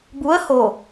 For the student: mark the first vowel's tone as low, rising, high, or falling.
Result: rising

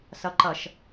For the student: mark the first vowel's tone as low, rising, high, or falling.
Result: low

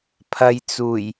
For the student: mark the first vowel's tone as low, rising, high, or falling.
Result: low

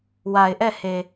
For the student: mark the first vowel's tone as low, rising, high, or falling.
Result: low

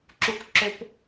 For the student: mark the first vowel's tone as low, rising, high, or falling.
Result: low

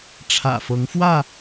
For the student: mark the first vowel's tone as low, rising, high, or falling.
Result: low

